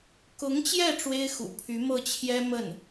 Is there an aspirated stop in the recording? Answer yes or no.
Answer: yes